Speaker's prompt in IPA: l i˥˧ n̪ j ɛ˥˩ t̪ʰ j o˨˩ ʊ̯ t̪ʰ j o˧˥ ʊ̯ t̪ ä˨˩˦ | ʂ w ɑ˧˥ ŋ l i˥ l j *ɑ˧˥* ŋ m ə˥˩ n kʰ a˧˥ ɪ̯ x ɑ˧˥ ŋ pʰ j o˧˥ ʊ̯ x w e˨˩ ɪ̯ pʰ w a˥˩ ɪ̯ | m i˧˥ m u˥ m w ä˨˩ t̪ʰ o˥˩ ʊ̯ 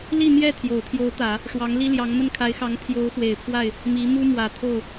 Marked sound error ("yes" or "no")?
no